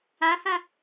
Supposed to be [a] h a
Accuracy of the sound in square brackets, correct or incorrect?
correct